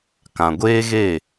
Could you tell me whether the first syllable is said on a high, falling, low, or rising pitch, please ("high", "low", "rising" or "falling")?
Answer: low